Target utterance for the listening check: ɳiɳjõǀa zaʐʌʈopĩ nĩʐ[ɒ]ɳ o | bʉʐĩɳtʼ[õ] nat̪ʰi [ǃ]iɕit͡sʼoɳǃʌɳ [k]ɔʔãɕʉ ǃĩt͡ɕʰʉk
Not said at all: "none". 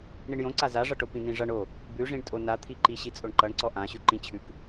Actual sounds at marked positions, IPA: ʌ, o, ǃ, ǀ

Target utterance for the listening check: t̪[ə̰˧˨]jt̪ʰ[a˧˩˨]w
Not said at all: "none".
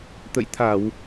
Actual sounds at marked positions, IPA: ə̰˧˨, a˧˩˨

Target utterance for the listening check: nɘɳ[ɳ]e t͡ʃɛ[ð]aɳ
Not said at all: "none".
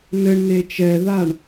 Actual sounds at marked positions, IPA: n, ð

